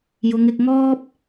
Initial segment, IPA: j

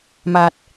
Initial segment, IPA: m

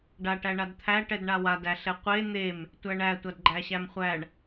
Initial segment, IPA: ɖ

